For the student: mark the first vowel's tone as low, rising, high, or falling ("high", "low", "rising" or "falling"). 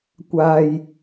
low